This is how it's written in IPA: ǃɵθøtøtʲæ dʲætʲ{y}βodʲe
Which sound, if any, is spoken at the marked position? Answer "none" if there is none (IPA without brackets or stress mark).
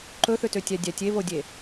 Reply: e